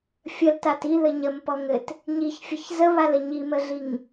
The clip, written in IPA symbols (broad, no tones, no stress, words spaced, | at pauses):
fʲəltat iðɘ ɲəmpɔŋɘt | ɲiçfʲəç zəβalə ɲiməɮiŋ